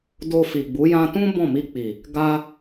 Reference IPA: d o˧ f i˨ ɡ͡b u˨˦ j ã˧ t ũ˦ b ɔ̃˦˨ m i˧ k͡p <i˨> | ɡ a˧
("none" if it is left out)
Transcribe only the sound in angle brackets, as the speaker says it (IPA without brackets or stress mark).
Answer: i˨